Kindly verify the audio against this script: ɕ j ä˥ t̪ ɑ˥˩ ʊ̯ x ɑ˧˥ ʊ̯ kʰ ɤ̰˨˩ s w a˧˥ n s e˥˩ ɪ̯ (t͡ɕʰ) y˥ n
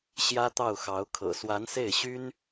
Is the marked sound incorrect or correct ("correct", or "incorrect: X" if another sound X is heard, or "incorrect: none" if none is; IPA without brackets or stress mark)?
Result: incorrect: ɕ